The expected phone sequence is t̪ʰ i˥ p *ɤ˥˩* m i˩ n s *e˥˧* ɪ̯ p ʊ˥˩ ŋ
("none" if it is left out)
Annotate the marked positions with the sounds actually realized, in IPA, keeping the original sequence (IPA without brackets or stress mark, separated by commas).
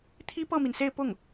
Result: ɤ˥˩, e˥˧